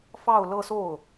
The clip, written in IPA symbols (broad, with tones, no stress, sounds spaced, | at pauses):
f ɑ˥˧ ʊ̯ l ɤ˥˧ s o˥˩ ʊ̯